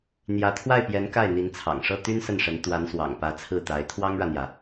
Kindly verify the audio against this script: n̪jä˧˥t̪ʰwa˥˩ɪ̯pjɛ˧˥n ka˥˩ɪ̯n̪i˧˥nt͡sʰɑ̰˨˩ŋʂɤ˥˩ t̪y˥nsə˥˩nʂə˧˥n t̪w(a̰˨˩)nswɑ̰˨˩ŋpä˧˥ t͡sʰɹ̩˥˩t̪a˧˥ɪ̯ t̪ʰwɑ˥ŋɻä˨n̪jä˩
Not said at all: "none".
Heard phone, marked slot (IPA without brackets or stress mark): a˧˥